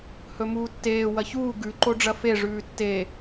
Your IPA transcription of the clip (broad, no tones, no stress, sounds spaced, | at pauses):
h ɵ m uː tː eː w ɐ ç uː ɡ ʉ ǃ o ɖ͡ʐ ɐ f e ʐ ʉː tː e